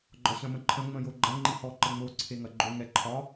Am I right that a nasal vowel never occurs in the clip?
no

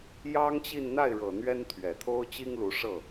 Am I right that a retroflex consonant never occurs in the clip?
no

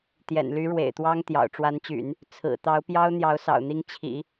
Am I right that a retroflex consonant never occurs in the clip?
no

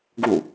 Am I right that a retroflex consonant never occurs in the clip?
yes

